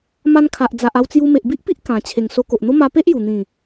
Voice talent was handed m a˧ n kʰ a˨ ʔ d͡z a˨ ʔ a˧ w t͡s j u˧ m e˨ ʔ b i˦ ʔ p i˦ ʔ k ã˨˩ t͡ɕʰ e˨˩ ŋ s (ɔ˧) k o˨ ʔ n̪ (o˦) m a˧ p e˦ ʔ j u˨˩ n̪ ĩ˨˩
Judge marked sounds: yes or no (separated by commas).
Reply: no, yes